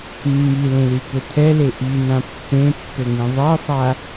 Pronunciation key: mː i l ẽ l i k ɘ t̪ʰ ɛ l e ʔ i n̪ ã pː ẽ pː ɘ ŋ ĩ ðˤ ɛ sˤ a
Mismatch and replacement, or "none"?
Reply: none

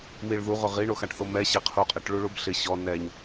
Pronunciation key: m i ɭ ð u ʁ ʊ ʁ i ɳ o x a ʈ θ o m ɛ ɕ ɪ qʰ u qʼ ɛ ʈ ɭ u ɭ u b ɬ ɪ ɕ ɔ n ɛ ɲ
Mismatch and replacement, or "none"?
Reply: none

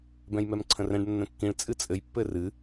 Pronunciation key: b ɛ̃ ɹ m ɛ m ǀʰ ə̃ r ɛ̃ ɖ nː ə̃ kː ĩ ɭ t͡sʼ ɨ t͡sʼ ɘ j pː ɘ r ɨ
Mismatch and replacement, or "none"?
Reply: ɹ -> j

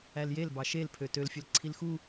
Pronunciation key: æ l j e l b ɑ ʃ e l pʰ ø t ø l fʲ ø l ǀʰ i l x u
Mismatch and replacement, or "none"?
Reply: none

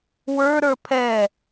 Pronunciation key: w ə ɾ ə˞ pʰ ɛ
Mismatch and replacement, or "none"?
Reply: ə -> ə˞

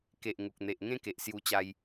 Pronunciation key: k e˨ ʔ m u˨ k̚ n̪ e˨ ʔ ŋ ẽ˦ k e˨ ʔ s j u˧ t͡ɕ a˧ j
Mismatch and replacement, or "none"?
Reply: m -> ŋ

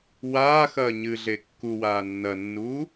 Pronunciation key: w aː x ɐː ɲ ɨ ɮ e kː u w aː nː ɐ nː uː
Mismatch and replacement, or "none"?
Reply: none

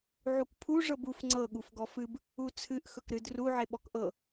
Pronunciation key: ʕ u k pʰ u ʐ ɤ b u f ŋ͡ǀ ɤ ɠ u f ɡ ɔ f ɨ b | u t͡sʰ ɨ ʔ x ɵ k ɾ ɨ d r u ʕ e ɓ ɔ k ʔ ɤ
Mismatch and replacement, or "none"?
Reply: none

